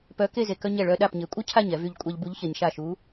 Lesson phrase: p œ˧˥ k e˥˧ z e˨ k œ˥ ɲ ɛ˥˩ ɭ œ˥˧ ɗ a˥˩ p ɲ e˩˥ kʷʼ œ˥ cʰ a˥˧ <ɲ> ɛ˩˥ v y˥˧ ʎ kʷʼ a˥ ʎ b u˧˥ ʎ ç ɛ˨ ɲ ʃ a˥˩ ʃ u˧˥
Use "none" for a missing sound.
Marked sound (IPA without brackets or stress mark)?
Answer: ɲ